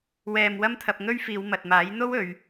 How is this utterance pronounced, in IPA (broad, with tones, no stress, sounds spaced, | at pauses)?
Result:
w ɛː˨ m w ɐ˥ m t̪ʰ ɐ˧ p̚ ŋ ɵ˥ ɥ f iː˨˧ w m ɐ˨ t̚ m aː˨˥ j n̪ o˥ w ɵ˨˧ ɥ